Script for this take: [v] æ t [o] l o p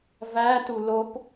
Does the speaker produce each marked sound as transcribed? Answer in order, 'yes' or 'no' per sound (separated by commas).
yes, no